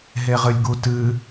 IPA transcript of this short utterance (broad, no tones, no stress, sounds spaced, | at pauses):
ɦ e ʁ ɨ lʲ ɡ u t ɨ